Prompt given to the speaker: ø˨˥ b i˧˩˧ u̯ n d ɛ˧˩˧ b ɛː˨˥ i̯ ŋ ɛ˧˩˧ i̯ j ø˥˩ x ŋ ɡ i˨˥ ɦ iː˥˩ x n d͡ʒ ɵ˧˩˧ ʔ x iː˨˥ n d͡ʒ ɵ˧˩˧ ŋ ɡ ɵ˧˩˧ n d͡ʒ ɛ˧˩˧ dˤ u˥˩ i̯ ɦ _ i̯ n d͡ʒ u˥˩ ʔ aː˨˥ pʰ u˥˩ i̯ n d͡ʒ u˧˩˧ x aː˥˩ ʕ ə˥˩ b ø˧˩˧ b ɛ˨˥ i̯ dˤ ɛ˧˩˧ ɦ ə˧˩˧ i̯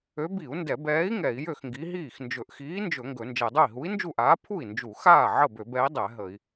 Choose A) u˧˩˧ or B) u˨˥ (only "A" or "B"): B